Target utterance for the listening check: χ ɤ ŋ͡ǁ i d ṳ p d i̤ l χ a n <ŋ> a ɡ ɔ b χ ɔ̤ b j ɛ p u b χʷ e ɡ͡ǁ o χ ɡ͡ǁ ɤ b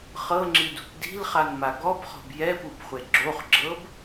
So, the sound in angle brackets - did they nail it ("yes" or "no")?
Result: no